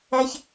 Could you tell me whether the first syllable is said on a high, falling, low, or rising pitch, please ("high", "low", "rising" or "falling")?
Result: high